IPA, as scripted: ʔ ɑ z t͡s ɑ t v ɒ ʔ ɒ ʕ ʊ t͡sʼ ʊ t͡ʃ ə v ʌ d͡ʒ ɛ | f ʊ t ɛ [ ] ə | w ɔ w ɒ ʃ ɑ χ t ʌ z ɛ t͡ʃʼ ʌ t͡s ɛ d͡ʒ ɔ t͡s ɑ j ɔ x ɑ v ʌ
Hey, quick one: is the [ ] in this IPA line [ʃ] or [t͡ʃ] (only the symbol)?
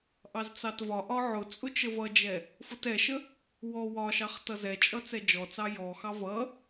ʃ